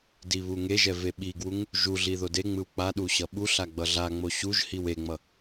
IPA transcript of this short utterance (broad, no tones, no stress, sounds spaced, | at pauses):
d i β u ŋ e ʒ ɛ v e ɓ i ɡ w u ŋ | ʒ u ɮ i ð o d e ŋ͡m ɯ w k͡p a ɗ u ɕ ʌ ɓ u ɬ a ɡ͡b ʌ ɮ a ŋ͡m o ɕ u ʒ h i w e ŋ͡m ʌ